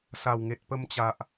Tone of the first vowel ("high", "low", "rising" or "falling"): low